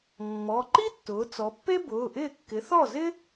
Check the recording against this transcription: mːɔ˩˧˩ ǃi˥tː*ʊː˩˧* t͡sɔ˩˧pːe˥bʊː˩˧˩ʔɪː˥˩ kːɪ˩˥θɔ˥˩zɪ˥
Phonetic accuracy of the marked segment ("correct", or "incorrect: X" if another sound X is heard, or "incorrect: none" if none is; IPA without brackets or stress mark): correct